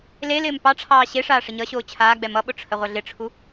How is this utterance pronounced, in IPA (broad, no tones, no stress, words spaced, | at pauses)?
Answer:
lelɪːm pɑʈ͡ʂʰɑː ɕeʂaː ʂɪɲʌɕoː t͡ɕʰaːɡ͡bɛ mʌɓʊ ʈ͡ʂʰəʁʷʌɮɪʈ͡ʂʰu